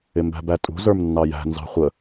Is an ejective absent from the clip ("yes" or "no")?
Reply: no